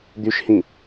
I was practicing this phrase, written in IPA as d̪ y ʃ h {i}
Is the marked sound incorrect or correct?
incorrect